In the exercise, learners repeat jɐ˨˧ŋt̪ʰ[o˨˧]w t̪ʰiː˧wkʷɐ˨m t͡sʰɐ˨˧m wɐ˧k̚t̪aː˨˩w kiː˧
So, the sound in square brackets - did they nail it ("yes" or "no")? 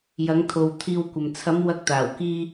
no